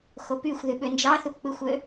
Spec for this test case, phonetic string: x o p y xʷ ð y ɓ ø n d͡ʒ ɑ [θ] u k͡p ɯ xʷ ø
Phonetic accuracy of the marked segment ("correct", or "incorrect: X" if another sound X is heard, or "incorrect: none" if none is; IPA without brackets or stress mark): correct